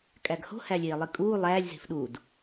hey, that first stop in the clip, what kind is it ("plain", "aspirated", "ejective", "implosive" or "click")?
ejective